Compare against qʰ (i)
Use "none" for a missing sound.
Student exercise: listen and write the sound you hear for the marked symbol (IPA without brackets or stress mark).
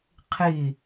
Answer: i